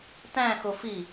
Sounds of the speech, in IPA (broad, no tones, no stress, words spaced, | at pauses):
tæ̃xofi